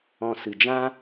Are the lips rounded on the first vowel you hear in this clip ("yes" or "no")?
yes